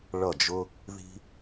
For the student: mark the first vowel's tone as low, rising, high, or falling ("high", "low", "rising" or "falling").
falling